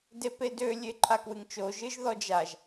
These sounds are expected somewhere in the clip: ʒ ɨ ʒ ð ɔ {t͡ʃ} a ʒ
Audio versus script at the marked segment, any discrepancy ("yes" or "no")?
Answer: yes